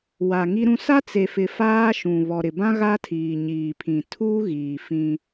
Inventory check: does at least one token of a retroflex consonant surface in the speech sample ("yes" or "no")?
no